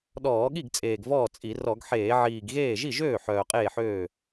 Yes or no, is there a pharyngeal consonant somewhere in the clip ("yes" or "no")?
yes